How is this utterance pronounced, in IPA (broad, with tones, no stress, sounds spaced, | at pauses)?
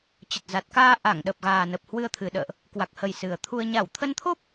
t͡ɕ ə˨˩ t̚ z a˨˩ t̚ k aː˧ ʔ a˧˩ ŋ ɗ ə˨˩ p̚ ɣ aː˨˩ n ə˨˩ p̚ h w ɨ˧ ə̯ t̪ʰ ɨ˨˩ ɗ ə̰ː˧˨ ʔ | k w a˨˩ k̚ h ə˨˩ j s ɨ˨˩ ə̯ t̪ʰ u˧ ə̯ ɲ a˧˩ w t̪ʰ ə˧ n t̪ʰ o˦˥ p̚